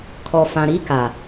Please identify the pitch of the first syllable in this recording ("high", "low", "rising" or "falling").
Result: low